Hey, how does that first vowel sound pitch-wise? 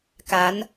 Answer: rising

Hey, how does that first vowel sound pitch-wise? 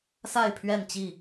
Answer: falling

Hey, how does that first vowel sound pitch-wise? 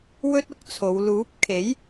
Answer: high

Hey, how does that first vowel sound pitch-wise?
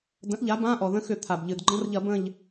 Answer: rising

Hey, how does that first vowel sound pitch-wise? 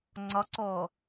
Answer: rising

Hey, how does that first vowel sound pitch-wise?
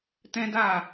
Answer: high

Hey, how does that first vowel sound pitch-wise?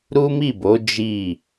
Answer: high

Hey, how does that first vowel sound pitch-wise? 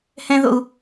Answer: high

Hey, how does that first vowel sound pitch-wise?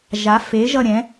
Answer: rising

